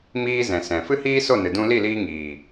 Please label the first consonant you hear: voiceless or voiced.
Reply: voiced